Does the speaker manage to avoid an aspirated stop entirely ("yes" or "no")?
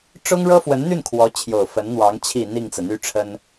no